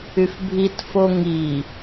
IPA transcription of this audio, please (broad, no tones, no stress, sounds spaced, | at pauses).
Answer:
y f bʱ i t f o ŋ i